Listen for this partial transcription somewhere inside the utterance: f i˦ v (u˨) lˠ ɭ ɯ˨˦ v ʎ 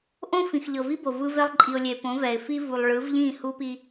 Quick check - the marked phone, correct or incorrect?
correct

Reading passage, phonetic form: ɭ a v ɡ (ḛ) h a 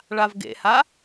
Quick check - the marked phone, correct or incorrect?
correct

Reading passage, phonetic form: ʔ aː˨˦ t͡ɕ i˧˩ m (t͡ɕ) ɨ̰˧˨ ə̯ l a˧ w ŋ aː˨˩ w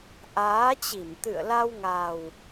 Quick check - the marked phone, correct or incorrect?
incorrect: t̪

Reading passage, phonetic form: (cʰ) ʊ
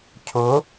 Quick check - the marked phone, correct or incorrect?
correct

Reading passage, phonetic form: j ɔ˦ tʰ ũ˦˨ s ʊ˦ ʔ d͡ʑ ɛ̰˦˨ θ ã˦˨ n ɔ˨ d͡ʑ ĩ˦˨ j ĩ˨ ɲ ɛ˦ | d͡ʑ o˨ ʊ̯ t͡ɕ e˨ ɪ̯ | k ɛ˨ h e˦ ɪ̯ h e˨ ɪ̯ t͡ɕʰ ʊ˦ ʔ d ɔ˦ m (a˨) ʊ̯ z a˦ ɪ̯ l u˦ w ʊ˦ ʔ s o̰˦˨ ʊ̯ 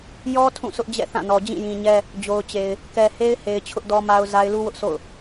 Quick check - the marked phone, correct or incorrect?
incorrect: a˦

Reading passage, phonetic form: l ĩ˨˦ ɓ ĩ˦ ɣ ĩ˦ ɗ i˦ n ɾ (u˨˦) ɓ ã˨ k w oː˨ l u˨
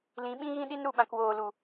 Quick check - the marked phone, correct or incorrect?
incorrect: u˨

